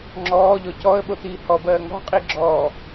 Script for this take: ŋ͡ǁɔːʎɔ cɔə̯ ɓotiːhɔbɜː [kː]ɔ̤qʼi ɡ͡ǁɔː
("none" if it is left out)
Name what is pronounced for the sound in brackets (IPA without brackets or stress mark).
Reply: ŋ